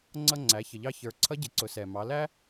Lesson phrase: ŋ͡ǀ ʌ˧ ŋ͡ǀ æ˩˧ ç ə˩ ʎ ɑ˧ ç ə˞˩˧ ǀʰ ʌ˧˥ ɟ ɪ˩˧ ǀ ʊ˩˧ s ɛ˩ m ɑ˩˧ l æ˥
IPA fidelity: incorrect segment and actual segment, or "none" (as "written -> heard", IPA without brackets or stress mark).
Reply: none